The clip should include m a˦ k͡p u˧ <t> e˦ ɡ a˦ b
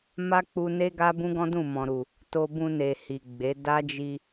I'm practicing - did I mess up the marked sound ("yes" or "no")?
yes